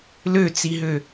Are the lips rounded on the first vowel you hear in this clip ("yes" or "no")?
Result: yes